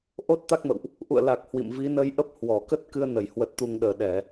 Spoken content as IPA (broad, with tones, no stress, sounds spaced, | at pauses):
ʔ o˦˥ t̚ t̪ a˦˥ k̚ m ə̰˧˨ w ʔ | ʔ ṵ˧˨ ə̯ l a˨˩ k̚ h w ḭ˧˨ m v i˨˦ n ə˧ j ʔ ə˦˥ p̚ h w ɔ˧˩ k ə˦˥ t̚ k ɨ˧ ə̯ n ə˧˩ j h w ə˨˩ t̚ t̪ u˨˩ ŋ ɗ əː˧˩ ɗ ɛ˧˩˨